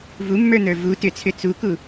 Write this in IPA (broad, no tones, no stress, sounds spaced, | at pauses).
v u mː ə˞ n ə˞ v u t ʏ t͡sʰ ʏ t͡s u k u